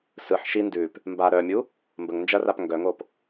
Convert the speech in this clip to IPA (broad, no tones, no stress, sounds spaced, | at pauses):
s ɯ ħ ʃ i n d ʉ p | m b a ɾ œ mʲ u | m b ə ŋ n d͡ʒ ɐ r a p ŋ ɡ œ ŋ o p